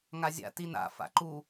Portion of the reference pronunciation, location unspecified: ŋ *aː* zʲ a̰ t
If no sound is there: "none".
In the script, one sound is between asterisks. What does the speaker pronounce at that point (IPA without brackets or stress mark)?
a